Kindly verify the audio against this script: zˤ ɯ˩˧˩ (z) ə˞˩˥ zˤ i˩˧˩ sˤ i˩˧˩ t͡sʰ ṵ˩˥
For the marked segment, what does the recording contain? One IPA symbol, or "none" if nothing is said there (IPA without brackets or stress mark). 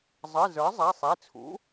z